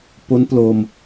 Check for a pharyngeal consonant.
absent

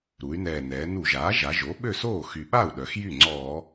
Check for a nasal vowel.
absent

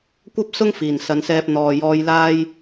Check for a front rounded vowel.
absent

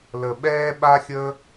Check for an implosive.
present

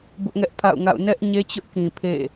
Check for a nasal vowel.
present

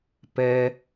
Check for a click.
absent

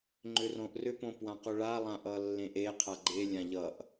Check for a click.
present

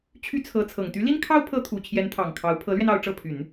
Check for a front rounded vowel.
present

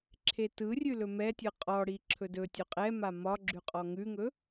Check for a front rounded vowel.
absent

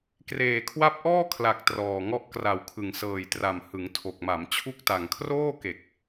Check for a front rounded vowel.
absent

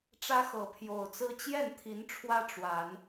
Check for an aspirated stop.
present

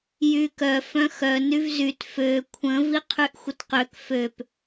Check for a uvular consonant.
present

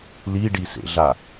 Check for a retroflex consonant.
present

